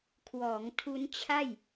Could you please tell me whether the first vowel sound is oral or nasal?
oral